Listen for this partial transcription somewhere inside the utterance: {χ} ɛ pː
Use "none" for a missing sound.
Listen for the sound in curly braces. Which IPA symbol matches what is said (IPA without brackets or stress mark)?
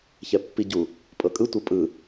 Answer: ç